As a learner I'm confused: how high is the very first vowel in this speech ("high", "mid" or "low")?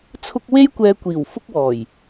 high